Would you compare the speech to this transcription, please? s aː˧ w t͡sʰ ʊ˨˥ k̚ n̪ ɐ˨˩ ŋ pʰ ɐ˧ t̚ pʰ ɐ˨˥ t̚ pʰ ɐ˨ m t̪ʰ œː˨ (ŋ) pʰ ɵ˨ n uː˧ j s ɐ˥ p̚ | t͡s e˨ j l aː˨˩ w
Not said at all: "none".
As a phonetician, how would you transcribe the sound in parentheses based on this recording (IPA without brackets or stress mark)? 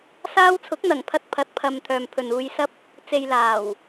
m